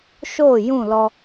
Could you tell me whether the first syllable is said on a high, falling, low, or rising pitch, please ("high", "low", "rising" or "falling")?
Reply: falling